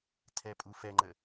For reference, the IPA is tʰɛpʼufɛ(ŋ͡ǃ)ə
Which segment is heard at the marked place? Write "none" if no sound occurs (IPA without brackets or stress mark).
ŋ͡ǃ